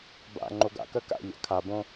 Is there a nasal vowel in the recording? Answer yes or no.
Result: yes